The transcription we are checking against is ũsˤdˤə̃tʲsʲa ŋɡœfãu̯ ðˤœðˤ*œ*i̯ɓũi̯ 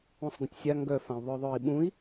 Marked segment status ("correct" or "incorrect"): correct